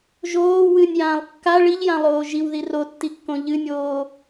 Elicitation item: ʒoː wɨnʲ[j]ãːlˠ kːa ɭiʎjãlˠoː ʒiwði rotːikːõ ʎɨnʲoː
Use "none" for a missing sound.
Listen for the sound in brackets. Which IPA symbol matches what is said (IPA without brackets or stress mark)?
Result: j